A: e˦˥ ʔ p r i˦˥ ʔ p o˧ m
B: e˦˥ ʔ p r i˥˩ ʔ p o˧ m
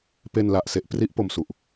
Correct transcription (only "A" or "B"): A